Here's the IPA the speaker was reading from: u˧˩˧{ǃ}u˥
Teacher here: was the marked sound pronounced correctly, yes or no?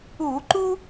yes